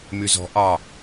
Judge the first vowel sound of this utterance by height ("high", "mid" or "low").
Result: high